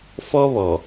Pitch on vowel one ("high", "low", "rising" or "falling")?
high